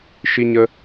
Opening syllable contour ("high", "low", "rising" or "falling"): high